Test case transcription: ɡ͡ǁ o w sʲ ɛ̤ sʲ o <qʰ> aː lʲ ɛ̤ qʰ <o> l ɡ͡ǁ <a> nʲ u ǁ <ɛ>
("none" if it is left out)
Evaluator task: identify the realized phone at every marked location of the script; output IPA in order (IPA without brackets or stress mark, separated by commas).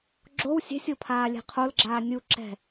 pʰ, o, aː, ɛ̤